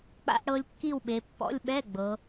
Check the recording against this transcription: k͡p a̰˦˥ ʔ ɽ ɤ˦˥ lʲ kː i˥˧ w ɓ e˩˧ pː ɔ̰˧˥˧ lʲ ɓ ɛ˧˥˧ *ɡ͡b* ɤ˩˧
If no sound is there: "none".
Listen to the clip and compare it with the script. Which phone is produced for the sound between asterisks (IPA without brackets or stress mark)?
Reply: ɡ͡b